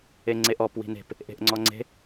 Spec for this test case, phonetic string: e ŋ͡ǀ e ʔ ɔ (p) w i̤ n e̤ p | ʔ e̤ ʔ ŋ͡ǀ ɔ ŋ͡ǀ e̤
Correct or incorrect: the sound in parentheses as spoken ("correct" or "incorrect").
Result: correct